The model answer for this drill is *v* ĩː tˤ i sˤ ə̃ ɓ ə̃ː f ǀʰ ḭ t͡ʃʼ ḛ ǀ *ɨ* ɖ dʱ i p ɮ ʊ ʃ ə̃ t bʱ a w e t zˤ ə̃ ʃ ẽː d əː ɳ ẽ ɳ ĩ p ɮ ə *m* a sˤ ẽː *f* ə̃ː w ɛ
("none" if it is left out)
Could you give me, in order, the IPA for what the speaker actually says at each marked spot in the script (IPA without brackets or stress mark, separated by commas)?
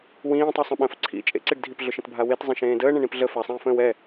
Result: w, i, f, f